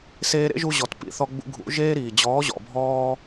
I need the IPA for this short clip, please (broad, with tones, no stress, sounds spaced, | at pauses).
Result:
s eː˧ ɾ ḛ˦ ʒ u˧ ʑ ɔ˨ t p ḭ˨˦ θ ɔ˧ ɡ͡b ṵ˧ ɡʱ ṵ˨˦ ʒ eː˦ ɾ iː˨ d͡ʑ ɔː˨˦ ʑ ɔ̰˨ bʱ ɔː˧